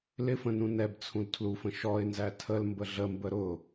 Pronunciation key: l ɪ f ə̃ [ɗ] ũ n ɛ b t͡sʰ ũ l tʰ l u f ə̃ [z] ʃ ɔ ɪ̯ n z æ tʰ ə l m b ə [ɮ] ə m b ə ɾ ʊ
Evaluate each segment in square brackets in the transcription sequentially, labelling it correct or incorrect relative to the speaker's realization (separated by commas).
incorrect, incorrect, correct